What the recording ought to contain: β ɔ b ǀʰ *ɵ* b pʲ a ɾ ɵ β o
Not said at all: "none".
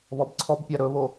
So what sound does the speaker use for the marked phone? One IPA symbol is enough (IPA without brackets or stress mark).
ɔ